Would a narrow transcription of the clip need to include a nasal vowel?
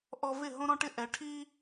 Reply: yes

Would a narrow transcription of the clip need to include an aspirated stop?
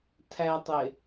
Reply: yes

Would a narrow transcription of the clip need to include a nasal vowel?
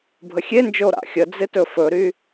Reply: no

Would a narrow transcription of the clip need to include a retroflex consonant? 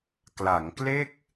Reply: no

